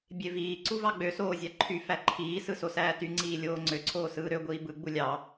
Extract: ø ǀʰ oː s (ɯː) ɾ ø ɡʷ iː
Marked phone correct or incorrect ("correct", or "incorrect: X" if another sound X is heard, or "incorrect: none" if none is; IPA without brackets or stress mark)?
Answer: correct